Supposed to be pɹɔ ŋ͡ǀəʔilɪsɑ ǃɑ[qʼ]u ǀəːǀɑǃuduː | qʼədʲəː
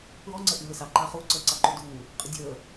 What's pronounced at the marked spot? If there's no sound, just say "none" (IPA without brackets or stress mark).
χ